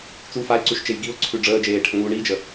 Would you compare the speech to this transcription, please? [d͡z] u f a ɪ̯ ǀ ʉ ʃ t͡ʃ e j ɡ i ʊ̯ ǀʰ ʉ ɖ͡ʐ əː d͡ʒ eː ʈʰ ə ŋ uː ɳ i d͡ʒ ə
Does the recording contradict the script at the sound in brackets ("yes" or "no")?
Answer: yes